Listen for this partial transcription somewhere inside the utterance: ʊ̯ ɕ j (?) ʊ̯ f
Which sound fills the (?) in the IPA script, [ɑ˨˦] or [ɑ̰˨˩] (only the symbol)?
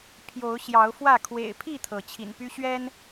ɑ˨˦